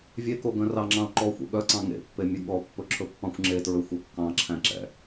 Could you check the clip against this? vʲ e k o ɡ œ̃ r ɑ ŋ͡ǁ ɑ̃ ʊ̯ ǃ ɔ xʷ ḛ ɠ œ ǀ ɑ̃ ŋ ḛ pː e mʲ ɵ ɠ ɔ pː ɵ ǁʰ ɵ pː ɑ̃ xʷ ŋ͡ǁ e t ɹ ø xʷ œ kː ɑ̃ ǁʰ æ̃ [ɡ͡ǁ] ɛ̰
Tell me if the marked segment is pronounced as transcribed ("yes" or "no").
no